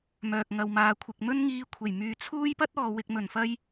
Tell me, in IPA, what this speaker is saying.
m œː˨ k̚ ŋ ɐ˨ w m aː˨ kʷʰ ɪ˨ k̚ m ɵ˥ n ŋ iː˧ kʷʰ e˨˩ j m yː˨ t͡sʰ uː˥ j p ɐ˥ t̚ ɔː˨ w ɪ˨ k̚ m ɵ˨˩ n f ɐ˧ j

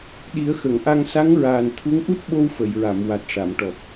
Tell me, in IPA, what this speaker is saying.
ɗ i˨˩˦ ə̯ x ə˨˩˨ ŋ ʔ a˧ ŋ s a˧˥ ŋ ɹ aː˨˩ n t̪ʰ u˧˥ ŋ ʔ u˦˥ t̚ ɓ o˧ w f ə˨˩˨ j ɹ a˨˩˨ m w a˨˩ t̚ ʂ a˨˩˨ m ʈ ɔ˨˩ p̚

